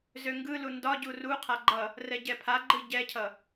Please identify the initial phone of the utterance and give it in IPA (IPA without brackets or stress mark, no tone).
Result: z